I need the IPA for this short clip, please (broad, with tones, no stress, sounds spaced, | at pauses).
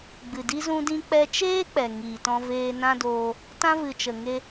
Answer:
ɡ͡b ɨ˨ d i˧ z ũ˧ d ĩ˧ k͡p ɛ˧ t͡ʃ eː˦ k͡p ɛ˨ ŋ iː˨ t ɔ̃˧ v eː˧ n ã˦ d oː˧ | t ã˧ v ɨ˨ t͡ʃ ə˨ ŋ e˧